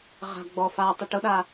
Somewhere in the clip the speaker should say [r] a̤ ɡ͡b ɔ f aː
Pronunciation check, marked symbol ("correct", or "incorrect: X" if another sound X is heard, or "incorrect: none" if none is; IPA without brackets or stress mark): incorrect: ʁ